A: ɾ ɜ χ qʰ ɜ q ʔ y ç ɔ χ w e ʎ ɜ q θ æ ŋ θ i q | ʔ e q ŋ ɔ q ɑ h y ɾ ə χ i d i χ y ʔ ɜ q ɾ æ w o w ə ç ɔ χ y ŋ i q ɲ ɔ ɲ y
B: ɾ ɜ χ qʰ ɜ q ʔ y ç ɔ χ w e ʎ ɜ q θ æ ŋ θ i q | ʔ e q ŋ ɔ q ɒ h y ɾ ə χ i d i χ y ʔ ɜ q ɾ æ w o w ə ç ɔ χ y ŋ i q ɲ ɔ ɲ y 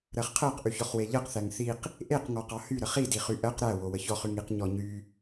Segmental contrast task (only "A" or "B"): A